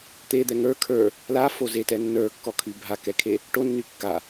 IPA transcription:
t̪ e d̪ ɛ ŋ ə˞ kʰ ə˞ | l a f o z e t ɛ nː ə˞ kː ɔ kʰ y bʱ a k ɛ kʰ e | ʈ o nː y kː a

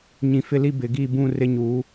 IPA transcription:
ɲ ĩ˨ f ɪ˦ l i˦ b ɪ˨ ɡ i˦˨ b ũ˦˨ r ɪ˦ ɲ uː˨˦

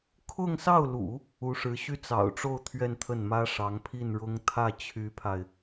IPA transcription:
kʰ ʊ˥˧ ŋ s ɑ˥˩ ʊ̯ l ṵ˨˩˦ | u˧˥ ʂ ɻ̩˧˥ ɕ y˥ t͡s ɑ̰˨˩ ʊ̯ ʈ͡ʂ o˥˧ ʊ̯ t̪ʰ ɥ ɛ˥˧ n t̪ʰ ə˥˩ n m ä˥ ʂ ɑ˧˥ ŋ pʰ i˥˩ n ɻ ʊ˥ ŋ t̪ʰ ä˥˩ t͡ɕʰ y˧˥ pʰ a˧ ɪ̯

